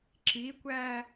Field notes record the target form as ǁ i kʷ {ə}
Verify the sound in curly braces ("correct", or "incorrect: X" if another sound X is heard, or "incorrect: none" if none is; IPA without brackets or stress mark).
incorrect: æ